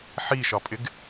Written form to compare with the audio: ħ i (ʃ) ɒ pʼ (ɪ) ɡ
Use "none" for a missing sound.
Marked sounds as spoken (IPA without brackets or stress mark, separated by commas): ʃ, ɪ